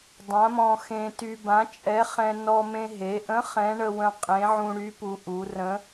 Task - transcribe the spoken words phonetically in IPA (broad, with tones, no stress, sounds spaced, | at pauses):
dˤ ã˨˥ m ɔ̃˧ x ẽ˧ t y˧ b ã˨˥ t͡ʃʼ ɛ˨˥ χ ɛ̃˧ n ɔ˧ m ẽ˧ ɦ e˩˧ ʔ ə̃˨˥ χ ɛ̃˨˥ ɳ ə˧ w ə̃˧ qʼ ẽ˨˥ ʕ ũ˧ ɽ y˨˥ p u˩˧ ʔ u˩˧ r ə̃˨˥